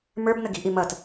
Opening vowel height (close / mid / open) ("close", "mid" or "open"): mid